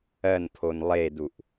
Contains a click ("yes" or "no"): no